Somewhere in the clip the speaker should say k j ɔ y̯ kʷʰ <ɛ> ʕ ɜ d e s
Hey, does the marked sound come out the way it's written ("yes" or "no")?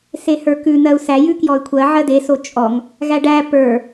no